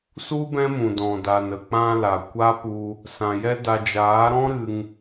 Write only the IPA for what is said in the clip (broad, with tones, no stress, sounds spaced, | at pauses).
s u˦ b ɛ̃˦ m ũ˨ d ɔ̃˨ d a˨ n ə˨ k͡p ã˧ l a˨ kʷ a˦ p u˧ | s ã˨ j ɛ˦ d a˧ d͡ʒ aː˨˦ ɾ ɔ̃˦ ɾ ɨ˧ ŋ